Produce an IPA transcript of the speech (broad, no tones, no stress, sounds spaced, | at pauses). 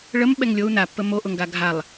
ɭ ə m ɓ ɛ ŋ lʲ o u̯ n a pː ə m o ʔ ʊ ŋ ɡ a ɡʱ a lˠ